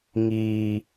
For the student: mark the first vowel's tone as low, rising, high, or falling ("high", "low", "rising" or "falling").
low